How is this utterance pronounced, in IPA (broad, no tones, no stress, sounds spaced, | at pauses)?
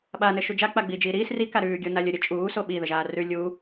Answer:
ɓ a n ɘ ʃ u d͡ʒ a k͡p a ɡ͡b iː d͡ʒ iː ɾ iː s r i k a ɾ ʉː ɡʲ o n a lʲ ə ɾʲ ə t͡ʃʼ uː s o ɓ i ð ə ʒ aː r ʉ lʲ uː